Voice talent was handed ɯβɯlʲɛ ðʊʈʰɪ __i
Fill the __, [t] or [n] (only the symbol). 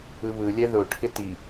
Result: t